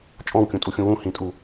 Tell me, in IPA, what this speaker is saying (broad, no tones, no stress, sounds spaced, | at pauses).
t͡ʃʼ ɔ̃ w kʲ ũ tʼ u xʲ ũ w ũ h ĩ tʼ u